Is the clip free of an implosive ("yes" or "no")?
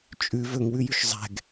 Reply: yes